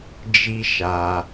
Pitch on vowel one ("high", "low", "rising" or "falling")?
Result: high